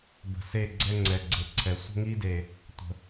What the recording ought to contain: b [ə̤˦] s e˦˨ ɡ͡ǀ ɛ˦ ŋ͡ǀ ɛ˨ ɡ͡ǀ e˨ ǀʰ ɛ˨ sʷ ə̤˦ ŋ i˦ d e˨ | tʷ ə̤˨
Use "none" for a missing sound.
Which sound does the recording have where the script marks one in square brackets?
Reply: ə̤˨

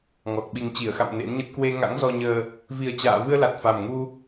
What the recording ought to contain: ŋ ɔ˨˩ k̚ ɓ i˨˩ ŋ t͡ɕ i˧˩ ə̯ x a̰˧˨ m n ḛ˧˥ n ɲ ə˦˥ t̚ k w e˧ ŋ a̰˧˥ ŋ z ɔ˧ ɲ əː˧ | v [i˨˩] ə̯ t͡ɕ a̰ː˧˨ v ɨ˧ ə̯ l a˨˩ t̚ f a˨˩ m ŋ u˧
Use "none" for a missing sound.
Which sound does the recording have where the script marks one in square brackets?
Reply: i˨˩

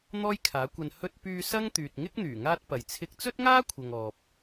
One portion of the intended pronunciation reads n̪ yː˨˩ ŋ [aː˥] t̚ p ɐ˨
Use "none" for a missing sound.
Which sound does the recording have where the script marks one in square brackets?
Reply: aː˥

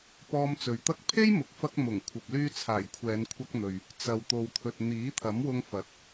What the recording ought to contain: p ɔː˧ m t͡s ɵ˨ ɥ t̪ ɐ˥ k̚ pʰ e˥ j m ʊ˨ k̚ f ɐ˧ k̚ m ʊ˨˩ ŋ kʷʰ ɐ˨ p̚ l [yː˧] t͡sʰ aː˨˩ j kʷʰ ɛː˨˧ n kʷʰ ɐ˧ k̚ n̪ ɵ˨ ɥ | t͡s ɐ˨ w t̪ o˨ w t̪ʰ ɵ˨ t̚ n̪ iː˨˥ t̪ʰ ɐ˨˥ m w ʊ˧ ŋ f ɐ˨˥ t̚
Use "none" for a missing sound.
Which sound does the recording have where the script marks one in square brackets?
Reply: yː˧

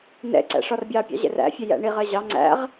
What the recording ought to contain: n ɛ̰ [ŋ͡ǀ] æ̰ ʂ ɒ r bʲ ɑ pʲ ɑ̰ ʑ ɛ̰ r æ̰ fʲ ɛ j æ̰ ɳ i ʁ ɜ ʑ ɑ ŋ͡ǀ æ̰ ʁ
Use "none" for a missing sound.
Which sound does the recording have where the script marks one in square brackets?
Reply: ǀ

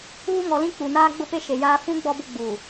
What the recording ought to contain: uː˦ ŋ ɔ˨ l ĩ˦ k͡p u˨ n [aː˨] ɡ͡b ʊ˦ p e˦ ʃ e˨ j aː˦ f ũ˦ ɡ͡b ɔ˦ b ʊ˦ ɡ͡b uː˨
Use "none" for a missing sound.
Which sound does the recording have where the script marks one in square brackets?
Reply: aː˦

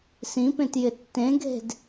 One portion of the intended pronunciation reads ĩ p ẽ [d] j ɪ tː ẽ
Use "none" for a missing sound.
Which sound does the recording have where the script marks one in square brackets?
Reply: t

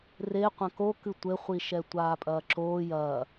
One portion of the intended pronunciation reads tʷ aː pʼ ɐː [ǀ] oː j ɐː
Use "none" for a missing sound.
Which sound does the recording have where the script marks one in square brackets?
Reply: ǁ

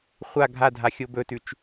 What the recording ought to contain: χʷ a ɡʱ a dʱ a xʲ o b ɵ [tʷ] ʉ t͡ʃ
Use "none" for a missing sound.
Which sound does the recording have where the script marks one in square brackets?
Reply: t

